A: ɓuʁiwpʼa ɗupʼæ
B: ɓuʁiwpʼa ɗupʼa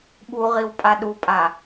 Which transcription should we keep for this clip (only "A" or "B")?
B